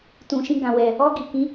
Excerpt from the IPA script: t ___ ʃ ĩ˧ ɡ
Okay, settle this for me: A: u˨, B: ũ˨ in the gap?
B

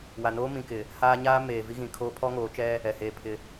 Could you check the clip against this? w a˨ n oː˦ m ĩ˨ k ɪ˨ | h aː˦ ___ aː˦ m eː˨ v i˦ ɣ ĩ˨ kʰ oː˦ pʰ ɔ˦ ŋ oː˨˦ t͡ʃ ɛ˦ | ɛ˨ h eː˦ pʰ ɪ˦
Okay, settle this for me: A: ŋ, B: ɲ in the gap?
B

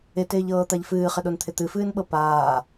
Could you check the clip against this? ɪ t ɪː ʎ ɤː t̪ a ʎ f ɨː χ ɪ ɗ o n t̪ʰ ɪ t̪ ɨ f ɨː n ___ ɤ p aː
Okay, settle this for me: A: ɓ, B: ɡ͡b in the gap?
A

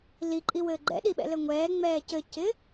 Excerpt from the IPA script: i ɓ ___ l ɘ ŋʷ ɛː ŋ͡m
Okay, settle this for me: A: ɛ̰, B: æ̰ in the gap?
A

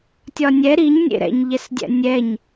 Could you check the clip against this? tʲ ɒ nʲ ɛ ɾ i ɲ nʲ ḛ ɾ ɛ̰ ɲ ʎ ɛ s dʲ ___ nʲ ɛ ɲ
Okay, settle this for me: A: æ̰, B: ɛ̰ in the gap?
A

